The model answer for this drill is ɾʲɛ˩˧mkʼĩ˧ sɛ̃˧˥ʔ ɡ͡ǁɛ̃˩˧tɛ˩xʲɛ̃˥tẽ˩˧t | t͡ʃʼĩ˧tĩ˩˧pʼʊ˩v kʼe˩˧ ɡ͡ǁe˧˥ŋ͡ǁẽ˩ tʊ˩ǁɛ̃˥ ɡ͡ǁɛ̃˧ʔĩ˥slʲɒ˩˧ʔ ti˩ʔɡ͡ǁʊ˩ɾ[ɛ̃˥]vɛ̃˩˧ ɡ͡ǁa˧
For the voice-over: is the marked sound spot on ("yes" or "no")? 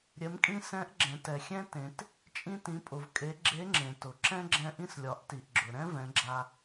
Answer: yes